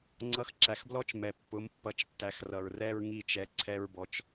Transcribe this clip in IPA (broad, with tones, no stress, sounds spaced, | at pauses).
ŋ͡ǀ ʌ˧˥ x ǁ æ˨ x b l ɔ˥ t͡ʃ m ɛ˨ pː ʊ˧˥ m pː ʌ˧˥ t͡ʃ tː æ˧˥ x r ʌ˨ ɹ r ɛ˥ ɹ ŋ i˥ t͡ʃ ɛ˧˥ ǀʰ ɛ˥ ɹ b ɔ˧˥ t͡ʃ